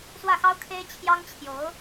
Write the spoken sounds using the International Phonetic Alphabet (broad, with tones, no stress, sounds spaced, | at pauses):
s w ä˥˩ x ɑ˥ ʊ̯ kʰ e˥ ɪ̯ t͡ɕʰ j ɑ˥ ŋ t͡ɕʰ j o˧˥ ʊ̯